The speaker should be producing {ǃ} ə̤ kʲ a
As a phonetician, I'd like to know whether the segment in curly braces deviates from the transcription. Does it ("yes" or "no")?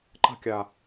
no